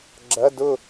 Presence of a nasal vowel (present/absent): absent